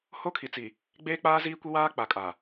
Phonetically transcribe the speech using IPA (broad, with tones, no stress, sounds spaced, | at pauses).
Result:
h o˦ kʰ i˨ t͡s i˨ | ɡ͡b eː˦ k͡p aː˦ z iː˦ kʷ i˦ w aː˦ k͡p a˨ kʼ a˨